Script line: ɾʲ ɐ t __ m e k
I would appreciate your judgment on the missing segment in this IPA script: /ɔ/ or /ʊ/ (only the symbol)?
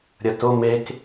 ʊ